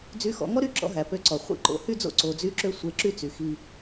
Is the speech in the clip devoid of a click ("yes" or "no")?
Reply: no